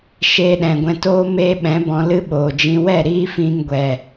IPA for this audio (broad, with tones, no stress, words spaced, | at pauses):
ʃeː˧ɗɛ̃˨ɡʷɛ̃˧toː˦ meː˦ɓɛ̃˨˦bɔ̃˧ lɨ˦ɓoː˨d͡ʒĩ˧ wɛ˦˨ ɾiː˦fĩ˧ŋɡʷɛ˨